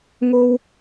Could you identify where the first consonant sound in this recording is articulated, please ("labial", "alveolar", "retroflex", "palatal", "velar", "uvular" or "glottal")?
velar